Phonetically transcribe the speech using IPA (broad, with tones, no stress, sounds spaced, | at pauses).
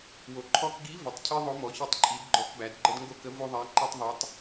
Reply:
w o˩ ǃʰ ɔ˧ k ɡ i˧˥ v ə˩ tˤ cʰ i˧ ðˤ o˧˥ m ɔ˩˧ ç i˧˥ tˤ ǃʼ i˩˧ d ɡ͡ǃ ɔ˧˥ k b æ˩˧ d ɡ͡ǃ ə˥ d ŋ ɡ o˥ k ə˧˥ v o˥ ðˤ æ˧˥ ǃ ɛ˥ tˤ ðˤ ɛ˧˥ tˤ